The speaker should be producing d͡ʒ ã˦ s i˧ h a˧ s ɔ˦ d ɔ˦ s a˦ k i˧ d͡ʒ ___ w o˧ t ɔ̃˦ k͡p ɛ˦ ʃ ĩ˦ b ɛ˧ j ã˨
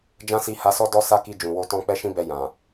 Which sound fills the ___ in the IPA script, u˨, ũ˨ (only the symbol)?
ũ˨